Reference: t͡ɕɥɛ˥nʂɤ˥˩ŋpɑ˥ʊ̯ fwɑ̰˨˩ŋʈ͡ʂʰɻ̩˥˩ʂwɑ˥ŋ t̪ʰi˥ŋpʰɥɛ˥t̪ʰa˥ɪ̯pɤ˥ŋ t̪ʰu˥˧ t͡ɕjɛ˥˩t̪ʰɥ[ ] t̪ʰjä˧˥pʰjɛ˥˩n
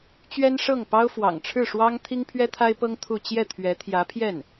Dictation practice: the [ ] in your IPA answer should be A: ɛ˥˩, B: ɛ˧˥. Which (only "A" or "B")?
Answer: B